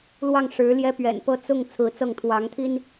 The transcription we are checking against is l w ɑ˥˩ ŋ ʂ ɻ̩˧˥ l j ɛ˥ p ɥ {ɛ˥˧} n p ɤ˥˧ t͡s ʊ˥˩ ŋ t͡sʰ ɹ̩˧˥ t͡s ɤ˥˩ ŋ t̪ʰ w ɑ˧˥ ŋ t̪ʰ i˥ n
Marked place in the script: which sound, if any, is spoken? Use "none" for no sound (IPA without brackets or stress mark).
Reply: ɛ̰˨˩